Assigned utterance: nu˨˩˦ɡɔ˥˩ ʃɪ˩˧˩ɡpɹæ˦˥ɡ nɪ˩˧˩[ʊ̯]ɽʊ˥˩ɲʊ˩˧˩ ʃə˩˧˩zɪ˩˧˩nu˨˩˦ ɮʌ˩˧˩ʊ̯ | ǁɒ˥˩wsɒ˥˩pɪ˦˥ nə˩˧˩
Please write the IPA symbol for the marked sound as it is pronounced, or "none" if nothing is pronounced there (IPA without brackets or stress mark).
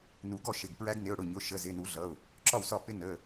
ʊ̯